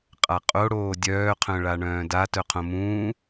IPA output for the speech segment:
qʼ a qʼ o ɽ oː dʲ œː qʰ œ̃ ɭ a ɳ œ̃ː d a t œ qʰ õ m ũː

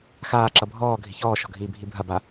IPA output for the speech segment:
x aː ǁ ʌ bʱ ɔː ɡʱ i̤ ç ɔː ʃ ɔ̤ ɡʱ iː bʱ i bʱ ɐ b a

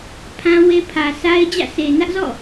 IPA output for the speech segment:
pʰ ã˦ w e˦ pʰ ä˨ sʰ a˦ ɪ̯ d͡ʑ ä̰˦˨ sʰ e˨ n ä˦ ʔ z ɔ̰˦˨

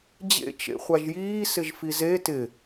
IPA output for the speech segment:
d͡ʑ ḛ t͡ʃ ḛ χʷ a ʒ j iː s ɪ ʒ f i z e t ɪ

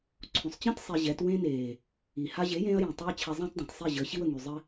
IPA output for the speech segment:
ǀʰ ũ˨ sˤ t͡ɕ ẽ˦ t sˤ e˧ ʑ ɛ˨˦ t w ẽ˦ n eː˨ | i˨ h a˦ ʑ e˨˦ j ẽː˧ ɐ̯ j ẽ˨ tˤ a˦ ɐ̯ t͡ɕʰ ɛ˧ zˤ ã˦ t dˤ ã˨ t sˤ i˦˨ ʑ əː˨˦ ɕ i˦ w ə˨ ŋ y˨ zˤ ɘ˦

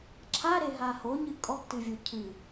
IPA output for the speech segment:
ǁʰ a ɾ e ɦ a h o ɲ ɨ kʼ ɔ ɡ t ɨ vʲ o cʰ ɨ

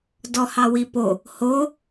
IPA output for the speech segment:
d ɔ h ɑ w i p o | h o

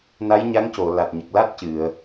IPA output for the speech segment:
n a˧˥ j ɲ a˧˥ ŋ c o˨˩˨ l a˨˩ t̚ ɲ ə˨˩ k̚ l a˦˥ t̚ c ɨ˨˩˨ ə̯

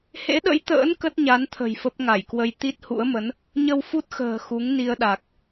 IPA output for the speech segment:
h ḛ˧˥ ɗ ə̰˧˥ j t̪ ə̰ː˧˥ n k ə˦˥ t̚ ɲ a˨˦ n t̪ʰ ə̤˨˩ j f ə˦˥ p̚ ŋ a˧˩ j k w ə˧ j t̪ i˦˥ t̚ h ṵ˧˥ ə̯ m ə˨˦ n | ɲ ə˧ w f u˦˥ t̚ x ə̤ː˨˩ x u˨˦ ŋ n i˧ ə̯ ɗ a˨˩ k̚

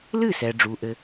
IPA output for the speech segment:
l ɨ˥˩ s ɛ˩ ɖ͡ʐ u˩ ʔ ɘ˩

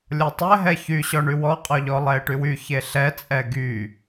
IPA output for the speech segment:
lʲ ɔ tˤ ɛ ɦ ɛ ç y ɕ ɔ ɳ y w ɔ qʼ ɔ ʎ ɔ lˠ ɛ e̯ ʈ y w y ç e ɬ ɛ t͡sʼ ɛ ɡ y

